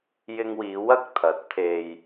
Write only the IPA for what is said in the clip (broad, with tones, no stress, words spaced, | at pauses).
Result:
jɪ˧ŋwiː˨˧ wɐ˥k̚t̪ʰɐ˨˥t̚ t̪ʰe˧j